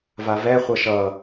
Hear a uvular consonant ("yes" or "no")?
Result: yes